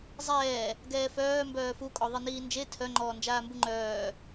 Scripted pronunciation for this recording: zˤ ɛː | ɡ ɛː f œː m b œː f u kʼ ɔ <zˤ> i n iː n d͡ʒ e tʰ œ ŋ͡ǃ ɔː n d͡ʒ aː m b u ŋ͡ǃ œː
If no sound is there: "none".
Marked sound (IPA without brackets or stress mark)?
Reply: ðˤ